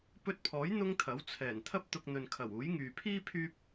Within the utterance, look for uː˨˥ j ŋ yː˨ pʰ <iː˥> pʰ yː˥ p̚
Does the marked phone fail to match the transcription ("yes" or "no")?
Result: no